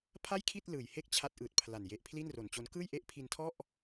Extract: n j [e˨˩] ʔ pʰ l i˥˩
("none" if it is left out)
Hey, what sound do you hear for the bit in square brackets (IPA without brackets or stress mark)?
e˨˩